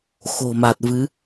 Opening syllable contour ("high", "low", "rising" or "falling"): low